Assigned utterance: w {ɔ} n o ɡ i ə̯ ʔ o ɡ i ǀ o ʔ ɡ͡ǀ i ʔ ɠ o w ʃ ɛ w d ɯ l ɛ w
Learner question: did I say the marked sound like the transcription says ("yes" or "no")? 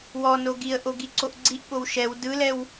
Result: yes